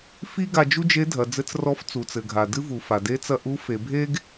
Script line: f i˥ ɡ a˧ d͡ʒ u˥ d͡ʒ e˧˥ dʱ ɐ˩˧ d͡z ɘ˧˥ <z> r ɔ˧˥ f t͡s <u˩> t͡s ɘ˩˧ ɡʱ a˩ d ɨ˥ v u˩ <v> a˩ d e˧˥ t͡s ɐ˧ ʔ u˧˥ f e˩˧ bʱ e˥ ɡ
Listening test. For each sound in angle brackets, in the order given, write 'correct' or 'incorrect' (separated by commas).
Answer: incorrect, incorrect, incorrect